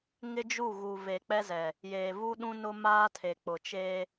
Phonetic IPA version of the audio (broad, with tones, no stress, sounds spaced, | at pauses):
ŋ ɪ˦ d͡ʒ u˦˨ ɣ u˨ v e˨ k͡p ɛ˦ z ɛ˨ | j eː˨ v u˦ ɗ ũ˦ n ʊ˦ m aː˦ tʰ e˨ k͡p ʊ˨ t͡ʃ eː˦